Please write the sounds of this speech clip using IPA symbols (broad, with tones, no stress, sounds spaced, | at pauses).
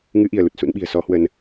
ŋ ɨ˨˦ ʔ i˧˩ ə̯ l u˨˩ t̚ s ṵ˧˥ n ɓ i̤˨˩ ə̯ s ɔ˨˦ h w ə˧ n